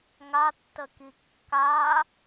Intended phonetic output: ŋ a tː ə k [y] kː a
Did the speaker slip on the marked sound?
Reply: yes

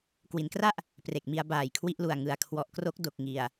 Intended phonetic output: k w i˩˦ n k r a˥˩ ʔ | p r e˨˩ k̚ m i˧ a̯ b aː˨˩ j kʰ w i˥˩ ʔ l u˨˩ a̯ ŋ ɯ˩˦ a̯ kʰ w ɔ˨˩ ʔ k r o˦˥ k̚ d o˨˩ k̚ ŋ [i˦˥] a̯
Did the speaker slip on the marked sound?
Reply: yes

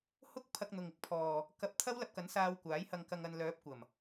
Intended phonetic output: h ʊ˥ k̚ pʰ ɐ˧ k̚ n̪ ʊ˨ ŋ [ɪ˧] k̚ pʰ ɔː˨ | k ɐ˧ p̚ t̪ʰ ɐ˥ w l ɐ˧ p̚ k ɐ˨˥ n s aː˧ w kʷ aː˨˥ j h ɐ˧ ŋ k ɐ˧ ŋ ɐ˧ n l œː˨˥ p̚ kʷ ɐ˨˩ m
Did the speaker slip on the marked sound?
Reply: no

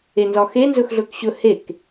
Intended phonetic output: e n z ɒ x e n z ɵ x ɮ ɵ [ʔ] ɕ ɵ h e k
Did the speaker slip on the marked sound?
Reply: yes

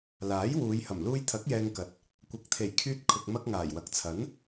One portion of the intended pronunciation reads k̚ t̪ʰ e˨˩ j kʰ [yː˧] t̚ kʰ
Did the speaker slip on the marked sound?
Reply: no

